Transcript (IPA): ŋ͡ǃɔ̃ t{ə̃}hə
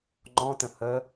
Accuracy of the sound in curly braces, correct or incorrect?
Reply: correct